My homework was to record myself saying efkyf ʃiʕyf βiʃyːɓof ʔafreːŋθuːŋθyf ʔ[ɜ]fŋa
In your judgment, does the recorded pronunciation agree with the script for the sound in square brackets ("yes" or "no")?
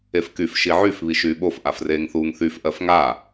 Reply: yes